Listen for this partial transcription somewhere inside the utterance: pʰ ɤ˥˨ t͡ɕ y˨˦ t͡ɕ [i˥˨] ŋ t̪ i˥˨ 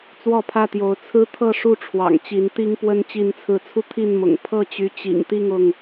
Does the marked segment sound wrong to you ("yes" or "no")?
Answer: yes